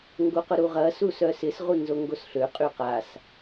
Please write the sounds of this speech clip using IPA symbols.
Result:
ŋ ɡ o q ʊ ɾ u ʁ ɐ s u s œ s ɪ s ʁ u n z o ŋ ɡ o s ɬ ø qʼ y q a s

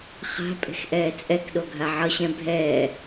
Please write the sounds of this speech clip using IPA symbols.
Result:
χ a̤ pʼ e̤ x ʔ ɛː t͡sʼ ɛ k ɗ o ɡʱ a ʕ ʌ ɕ ɛ̃ bʱ ɛː

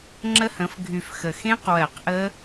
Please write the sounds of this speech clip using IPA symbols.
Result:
ŋ͡ǁ ə˦˥ h ə̃˩˥ f ɡʱ y˨˩ f x ə˨˩ x ẽ˦˥ q w ɜ˨˩˦ q ʔ ə˦˥

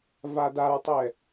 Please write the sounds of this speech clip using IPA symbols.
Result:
v a d a ɹ tˤ ɛ

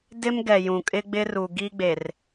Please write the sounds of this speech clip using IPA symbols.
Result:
d ɪ˦ m ɡ ɛ˨ j ũ˨ kʼ ɪ˦ ɡ͡b ɪ˦ r u˨ ɡ i˦ ɡ͡b e˨ r

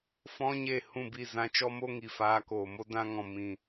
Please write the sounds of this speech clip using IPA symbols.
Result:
f ɔ̃˦ ɲ eː˦˨ h ũ˦˨ b i˦˨ z ã˧ t͡ʃ ɔ˦ m o˦ ŋ i˨ f aː˧ k oː˨ m o˦ d ã˧ ŋ ɔ̃˨ m ĩ˨

